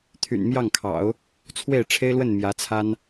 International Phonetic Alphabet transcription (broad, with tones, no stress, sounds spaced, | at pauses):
t̪ʰ y̰˨˩ n m j ɑ˥˩ ŋ kʰ ɑ̰˨˩˦ ʊ̯ | t͡sʰ w e˥˩ ɪ̯ ʈ͡ʂʰ e˥ ɪ̯ l w ə˥˩ n m j ä˧˥ t͡sʰ a˥ n